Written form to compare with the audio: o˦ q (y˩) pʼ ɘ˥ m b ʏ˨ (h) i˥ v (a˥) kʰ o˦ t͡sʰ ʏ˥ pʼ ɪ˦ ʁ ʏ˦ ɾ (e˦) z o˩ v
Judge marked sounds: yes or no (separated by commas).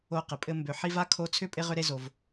no, no, yes, yes